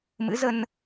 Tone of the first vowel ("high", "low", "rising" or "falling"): rising